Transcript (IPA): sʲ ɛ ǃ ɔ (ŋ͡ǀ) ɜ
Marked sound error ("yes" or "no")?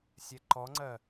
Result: no